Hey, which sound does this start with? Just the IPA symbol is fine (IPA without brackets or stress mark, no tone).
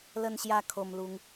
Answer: l